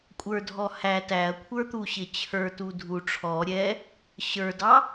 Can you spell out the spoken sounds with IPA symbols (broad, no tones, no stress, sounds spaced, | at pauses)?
kʷʼ ə˞ dʱ ɔ h æ t æ ɐ̯ kʷʰ ə˞ t̪ u ɕ ɪ t͡ɕʰ ə˞ t u dʱ u ʈ͡ʂʰ ɔ ɾʲ ɛ | ɕ ə˞ d ɑ